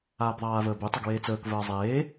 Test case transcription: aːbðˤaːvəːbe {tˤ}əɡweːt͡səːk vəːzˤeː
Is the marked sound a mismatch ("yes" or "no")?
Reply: no